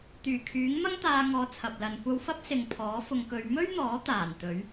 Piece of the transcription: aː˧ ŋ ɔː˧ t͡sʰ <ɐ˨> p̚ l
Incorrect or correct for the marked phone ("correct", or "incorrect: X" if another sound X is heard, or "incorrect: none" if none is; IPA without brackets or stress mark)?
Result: correct